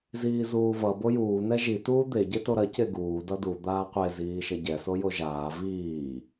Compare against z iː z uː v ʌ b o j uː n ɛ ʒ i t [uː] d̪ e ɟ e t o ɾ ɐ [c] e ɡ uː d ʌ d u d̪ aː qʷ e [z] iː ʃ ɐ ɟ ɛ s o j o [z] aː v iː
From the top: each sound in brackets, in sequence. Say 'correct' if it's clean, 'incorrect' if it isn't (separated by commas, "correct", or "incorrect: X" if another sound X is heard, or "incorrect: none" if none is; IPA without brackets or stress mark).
correct, correct, correct, incorrect: ʒ